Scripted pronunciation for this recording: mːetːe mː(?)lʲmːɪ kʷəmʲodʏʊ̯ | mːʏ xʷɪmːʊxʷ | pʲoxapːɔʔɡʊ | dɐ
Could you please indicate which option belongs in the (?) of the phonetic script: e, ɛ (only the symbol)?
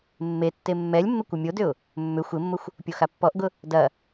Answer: ɛ